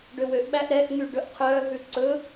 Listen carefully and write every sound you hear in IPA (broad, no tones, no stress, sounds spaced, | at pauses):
ɖ ø w ø ʔ ɓ æ ʔ ɾ ɛ ʔ ŋ y ɖ ɵ ʔ qʰ œ ɦ ʉ ǀ ɵ